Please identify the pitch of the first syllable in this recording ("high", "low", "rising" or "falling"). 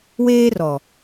high